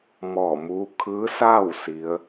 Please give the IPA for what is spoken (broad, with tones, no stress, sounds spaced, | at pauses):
m ɔː˧˩ m uː˧˥ kʰ ɯː˧˥ s aː˥˨ w s i˧˥ ə̯